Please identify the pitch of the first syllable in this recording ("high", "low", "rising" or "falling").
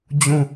falling